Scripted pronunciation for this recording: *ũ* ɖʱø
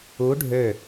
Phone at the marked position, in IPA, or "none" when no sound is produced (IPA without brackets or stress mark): u